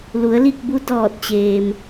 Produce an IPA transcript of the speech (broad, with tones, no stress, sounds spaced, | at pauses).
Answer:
l u˩˧ ə̯ l i˥˨ k̚ b u˧˥ d ɔː˧˩ t̚ t͡ɕ eː˩ m